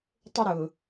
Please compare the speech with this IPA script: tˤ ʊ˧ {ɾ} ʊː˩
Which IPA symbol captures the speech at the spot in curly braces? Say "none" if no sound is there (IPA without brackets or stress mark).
ɾ